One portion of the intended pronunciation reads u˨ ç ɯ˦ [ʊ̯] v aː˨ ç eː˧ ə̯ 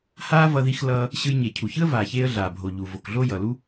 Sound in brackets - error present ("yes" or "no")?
yes